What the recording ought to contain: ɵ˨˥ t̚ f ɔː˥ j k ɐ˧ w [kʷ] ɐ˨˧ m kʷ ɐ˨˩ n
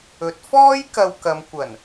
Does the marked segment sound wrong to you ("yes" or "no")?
yes